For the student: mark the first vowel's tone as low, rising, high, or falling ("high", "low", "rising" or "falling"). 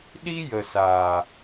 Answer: high